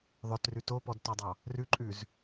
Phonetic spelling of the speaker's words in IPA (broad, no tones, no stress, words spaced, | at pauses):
ðˤœtrʉ topɔdtɔdˤɑ | rʉǃʼʉz